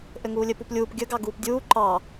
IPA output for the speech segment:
ʔ ɘ ŋ uː lʲ ɘ p u p lʲ uː p ɡʲ ə ɡ ɑ ɡ uː p dʲ uː ǃ ɑ

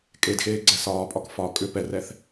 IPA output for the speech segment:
kʼ e d x eː ɡ͡ǀ ɛ s ɒː pʼ ɒ k f ɒ kʼ ʏ p ɛ r ɛ θ

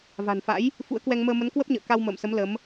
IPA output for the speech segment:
v a̤˨˩ n f a̰˧˥ j | f ṵ˧˥ ə̯ k w ɛ˧ ŋ m əː˧ m ə˨˦ n k w ə˦˥ p̚ ɲ ə̰ː˧˨ k a˧ w m ə̰ː˧˨ m s ə˨˦ m l ə˨˦ m

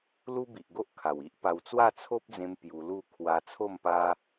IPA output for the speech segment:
l u˦ b i˨ ʔ ɡ o˦ ʔ kʰ a˨˩ w i˦ ʔ p a˧ w t͡s w a˥˧ t͡sʰ o˦ p̚ d͡z ẽ˧ m p j u˧ l u˥˧ kʰ w a˧ t͡sʰ o˥˧ m p a˦

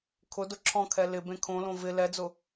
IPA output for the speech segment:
kʰ ʊ d ʊ ǁʰ ɔ̃ kʰ ɛ l ɪ b ẽ kʰ õ l õ v ɪ l ɛ d͡z ʊ

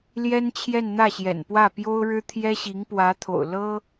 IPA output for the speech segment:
l j ɛ˥ n t͡ɕʰ j ɛ˥˧ n n̪ ä˥˩ ɕ j ɛ̰˨˩ n p w ä˥˩ p j o˥ ʊ̯ ɻ ɻ̩˥ t̪ʰ j ɛ˥ ɕ i˧˥ ŋ p w ä˧˥ t̪ʰ o̰˨˩ ʊ̯ l ɤ˥

